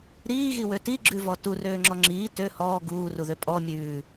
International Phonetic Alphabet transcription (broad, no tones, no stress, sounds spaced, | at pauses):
ɾ iː ɣ i w ø t i ɡ͡ǁ ʉ v ɔ t u r øː ŋ͡ǁ ɔ ŋ͡ǁ iː t ø h ɔː ɡ uː r u ð ø pʼ ɔ mʲ ʉː